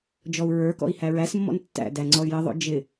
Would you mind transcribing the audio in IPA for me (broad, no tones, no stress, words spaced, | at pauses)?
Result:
d͡ʒɔu̯ɹə˞kɔ̰i̯ hæɹæsmːɔ̰n tːæ̰ dæŋ͡ǀɔy̯jəðˤo̰ d͡ʒɪ